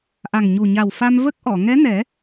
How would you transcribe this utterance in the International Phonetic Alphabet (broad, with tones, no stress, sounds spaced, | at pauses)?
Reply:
ʔ a˨˩ ŋ ɲ u˨˩ ɲ a˨˩ w f a˧ m v ə˦˥ k̚ ʔ ɔ˨˩˨ ŋ ɛ˧˥ n ɛ˨˩˦